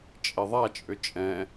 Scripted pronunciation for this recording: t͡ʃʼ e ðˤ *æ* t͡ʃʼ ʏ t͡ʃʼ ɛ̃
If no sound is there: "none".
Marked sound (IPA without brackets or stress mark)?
a